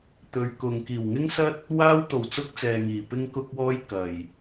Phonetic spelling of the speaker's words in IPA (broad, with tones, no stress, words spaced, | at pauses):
t̪ɵ˨˧ɥkʊ˨ŋ kiː˨˩wŋɪ˥ŋsɐ˥t̚ | waː˥wt̪o˨˩w t͡sʊ˥k̚t͡sɛː˨ŋiː˨˩ pɪ˥ŋkʊ˥k̚wɔː˥j kɐ˨˩j